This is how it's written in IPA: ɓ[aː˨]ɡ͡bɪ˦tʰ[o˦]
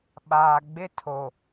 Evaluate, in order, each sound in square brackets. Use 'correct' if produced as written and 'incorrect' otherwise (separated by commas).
correct, incorrect